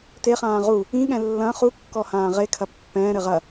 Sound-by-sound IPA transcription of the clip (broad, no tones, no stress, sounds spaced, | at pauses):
t e χ ãː ʁ u | ĩ ɠ ɛ̃ lː ɐ̃ χ u kː ɔ h ãː ʁ e kʰ ɐ pː ɛ̃ː ɾ ɘ ʁ ɐ